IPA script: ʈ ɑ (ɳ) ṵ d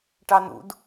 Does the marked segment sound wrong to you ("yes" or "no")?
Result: yes